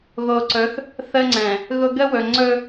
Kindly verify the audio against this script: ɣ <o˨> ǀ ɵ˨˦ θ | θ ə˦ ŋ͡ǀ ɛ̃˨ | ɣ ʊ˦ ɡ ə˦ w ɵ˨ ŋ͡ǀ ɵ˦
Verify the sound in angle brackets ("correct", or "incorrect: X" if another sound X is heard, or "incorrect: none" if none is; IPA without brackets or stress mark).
correct